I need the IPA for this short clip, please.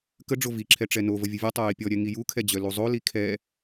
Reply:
k ə ɖ͡ʐ o v i ǁʰ ɛ ʈ͡ʂ ɛ n o v ə vʲ ə vʲ o tˤ œ j i pʲ ɔ ɾʲ ɛ ŋ i j u kʰ ɛ d͡ʑ œ l u zˤ o l i kʰ ɛ

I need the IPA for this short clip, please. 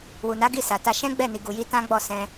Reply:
w u˨ n a˨˦ ɡ i˦˨ s a˨ t a˧ ʃ ɛ̃˦ ɡ͡b ɛ˦˨ n i˨ ɡ u˨ j i˧ t ã˦ ɡ͡b ɔ˦˨ s ɛ̃˧

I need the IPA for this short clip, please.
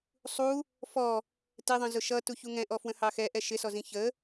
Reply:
sˤ u | f ɔ | t ɪ ðˤ ə̃ z ʊ ʃ ʌ t u ç u ŋ ɛ̃ ʔ ɔ f w ə̃ h ɑ x ɛ ʔ ɛ ʃ ɪ s ɔ z ĩ ç ə

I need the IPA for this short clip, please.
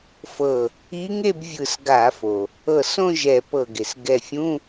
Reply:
f ɤ˧˩ | i˧˥ ŋ e˥˧ b vʲ ɯ˧˩ s ɡ a˧˩˧ f o˩ | ɤ˧˩ s õ˥˧ ʒ ɛ˧˩˧ p ɤ˧˩ ɡ e˩ s ɡ ɛ˧˩ fʲ ũ˧˥˧

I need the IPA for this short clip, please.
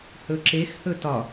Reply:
h ɵ ǁ e x h ɵ t ɒ

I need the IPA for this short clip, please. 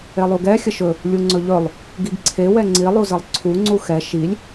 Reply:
e lˠ u ɡ ɛ xʲ ə ʃ ɵ | lʲ u ŋ͡ǀ ɵ ʎ ɵ lˠ | ɡ i ɡ ǀʰ e w ɛ ŋ͡ǀ i lˠ u z ə lˠ ǀʰ u ŋ͡ǀ u x ɛ ʃ i lʲ

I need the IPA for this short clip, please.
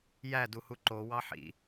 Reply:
j æ d u h u ǃ o w ɑ ħ ḭ

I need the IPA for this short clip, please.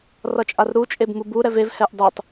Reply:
r ʌ t͡ʃʼ a r ɾ u t͡ʃʼ e b m u b u ɾ ɛ v e v h ɛ ʔ dˤ u tˤ

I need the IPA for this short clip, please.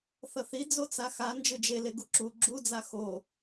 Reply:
θ ʌ θ i d͡z o t͡s a x a n d͡ʒ ɯ d͡ʒ e l e ɡ u ǁ u ɡ͡ǁ u d͡z a x o

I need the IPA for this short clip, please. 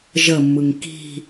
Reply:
ʒ ə mː ɯ ŋ k i̤

